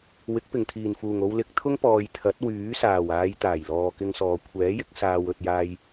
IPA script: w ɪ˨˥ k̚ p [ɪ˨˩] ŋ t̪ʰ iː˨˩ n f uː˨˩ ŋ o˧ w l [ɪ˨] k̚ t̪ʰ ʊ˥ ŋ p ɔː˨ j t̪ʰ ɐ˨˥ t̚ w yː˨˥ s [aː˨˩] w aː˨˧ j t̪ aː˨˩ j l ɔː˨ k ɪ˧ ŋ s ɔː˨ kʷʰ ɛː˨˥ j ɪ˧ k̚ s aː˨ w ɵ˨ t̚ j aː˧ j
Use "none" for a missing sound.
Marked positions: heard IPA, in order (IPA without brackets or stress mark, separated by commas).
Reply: ɪ˨˩, ɪ˧, aː˨˩